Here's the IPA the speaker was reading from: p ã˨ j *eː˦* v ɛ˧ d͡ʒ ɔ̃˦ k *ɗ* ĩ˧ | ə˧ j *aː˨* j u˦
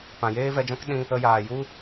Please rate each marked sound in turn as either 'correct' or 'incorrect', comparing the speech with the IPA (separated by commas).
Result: correct, correct, correct